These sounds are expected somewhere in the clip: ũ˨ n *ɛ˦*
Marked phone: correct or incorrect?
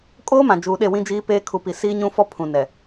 incorrect